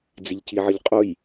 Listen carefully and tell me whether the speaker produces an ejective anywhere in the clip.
yes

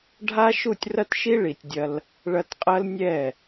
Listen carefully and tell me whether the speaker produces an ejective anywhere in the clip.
yes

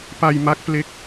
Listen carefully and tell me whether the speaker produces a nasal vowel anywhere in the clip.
no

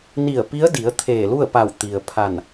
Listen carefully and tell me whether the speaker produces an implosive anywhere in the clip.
no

